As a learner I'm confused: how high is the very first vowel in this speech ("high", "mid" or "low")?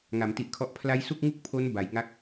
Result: low